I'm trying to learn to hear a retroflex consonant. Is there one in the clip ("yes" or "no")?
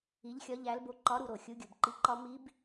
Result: no